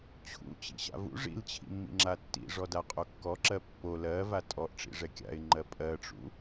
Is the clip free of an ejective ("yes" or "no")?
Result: no